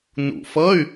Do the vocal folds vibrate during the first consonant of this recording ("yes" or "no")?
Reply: yes